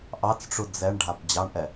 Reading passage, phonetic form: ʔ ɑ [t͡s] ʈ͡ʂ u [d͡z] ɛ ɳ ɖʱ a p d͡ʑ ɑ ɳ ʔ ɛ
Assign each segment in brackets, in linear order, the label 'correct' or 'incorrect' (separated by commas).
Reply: correct, correct